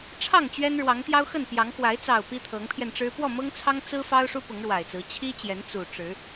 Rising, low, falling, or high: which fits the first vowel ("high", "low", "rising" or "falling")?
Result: falling